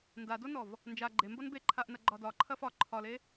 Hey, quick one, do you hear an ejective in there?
no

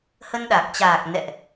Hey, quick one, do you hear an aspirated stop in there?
no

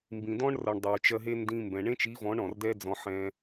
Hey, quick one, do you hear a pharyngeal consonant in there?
yes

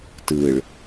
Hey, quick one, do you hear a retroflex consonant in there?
yes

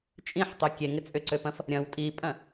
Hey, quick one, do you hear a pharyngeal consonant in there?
yes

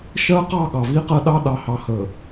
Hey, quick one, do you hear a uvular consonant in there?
yes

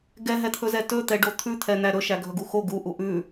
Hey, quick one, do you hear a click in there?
no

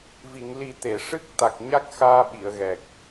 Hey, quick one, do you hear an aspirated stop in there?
no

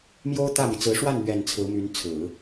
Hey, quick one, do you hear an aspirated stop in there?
yes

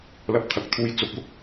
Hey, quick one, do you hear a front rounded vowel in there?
no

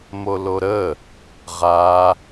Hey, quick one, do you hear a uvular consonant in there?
yes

